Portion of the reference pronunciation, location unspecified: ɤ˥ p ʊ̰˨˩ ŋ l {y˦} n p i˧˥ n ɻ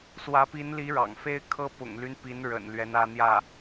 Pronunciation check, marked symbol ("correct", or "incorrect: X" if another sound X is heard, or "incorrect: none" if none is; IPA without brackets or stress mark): correct